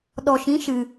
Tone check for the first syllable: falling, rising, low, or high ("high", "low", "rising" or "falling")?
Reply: low